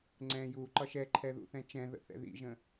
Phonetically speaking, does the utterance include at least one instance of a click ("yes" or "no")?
yes